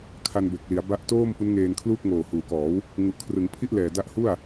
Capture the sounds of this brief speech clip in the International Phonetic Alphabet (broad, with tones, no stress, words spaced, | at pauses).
kʰa˧nbe˨˩k̚ li˩˦a̯ ba˦˥ʔ toː˥˩m pu˦˥nŋeː˧nkʰluː˥˩k̚ ŋoː˨˩huː˩˦kɔː˩˦w | ŋu˨˩ʔkʰrɯ˩˦ŋpʰi˥˩ʔlɛː˨˩ da˦˥ʔhu˥˩a̯